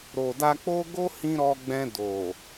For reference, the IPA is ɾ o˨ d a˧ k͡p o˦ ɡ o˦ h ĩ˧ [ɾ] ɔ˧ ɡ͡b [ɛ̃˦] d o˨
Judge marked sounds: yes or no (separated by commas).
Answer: yes, no